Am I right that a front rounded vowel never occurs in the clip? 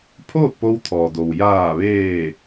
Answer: yes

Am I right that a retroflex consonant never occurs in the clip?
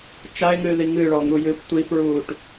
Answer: no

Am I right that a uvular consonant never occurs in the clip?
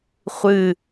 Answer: no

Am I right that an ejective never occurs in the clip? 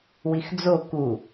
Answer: yes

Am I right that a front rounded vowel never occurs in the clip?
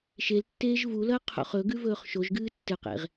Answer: yes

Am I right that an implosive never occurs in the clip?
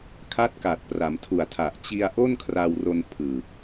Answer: yes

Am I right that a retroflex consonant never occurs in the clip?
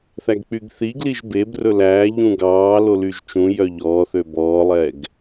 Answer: yes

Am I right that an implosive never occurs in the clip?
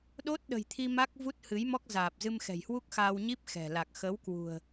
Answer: no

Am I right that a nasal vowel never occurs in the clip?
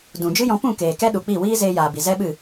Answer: no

